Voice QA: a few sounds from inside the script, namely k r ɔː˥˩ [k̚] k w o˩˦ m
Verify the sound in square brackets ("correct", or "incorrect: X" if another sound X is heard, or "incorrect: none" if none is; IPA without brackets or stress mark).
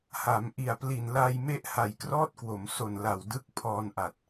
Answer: incorrect: t̚